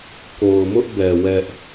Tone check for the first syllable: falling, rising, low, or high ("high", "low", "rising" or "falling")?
low